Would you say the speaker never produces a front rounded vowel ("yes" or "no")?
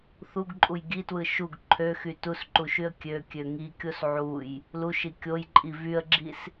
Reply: no